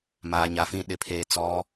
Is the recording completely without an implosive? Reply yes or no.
no